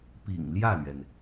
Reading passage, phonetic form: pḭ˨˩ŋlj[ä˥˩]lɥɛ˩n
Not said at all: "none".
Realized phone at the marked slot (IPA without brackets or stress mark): ä˥˩